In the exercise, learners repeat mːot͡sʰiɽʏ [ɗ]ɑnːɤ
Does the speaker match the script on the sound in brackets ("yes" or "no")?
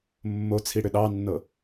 yes